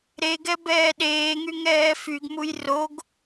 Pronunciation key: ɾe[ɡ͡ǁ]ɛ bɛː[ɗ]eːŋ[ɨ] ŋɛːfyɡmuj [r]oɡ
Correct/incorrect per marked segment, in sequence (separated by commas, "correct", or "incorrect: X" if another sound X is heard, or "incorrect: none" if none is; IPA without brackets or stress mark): incorrect: ɡ, correct, incorrect: y, correct